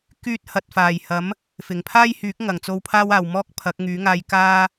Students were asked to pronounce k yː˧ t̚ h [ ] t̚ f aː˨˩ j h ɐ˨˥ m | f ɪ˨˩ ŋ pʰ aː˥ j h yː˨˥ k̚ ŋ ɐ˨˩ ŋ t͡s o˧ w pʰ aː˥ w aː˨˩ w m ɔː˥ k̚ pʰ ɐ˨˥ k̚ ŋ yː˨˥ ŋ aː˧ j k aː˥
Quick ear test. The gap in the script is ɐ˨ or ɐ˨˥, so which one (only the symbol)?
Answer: ɐ˨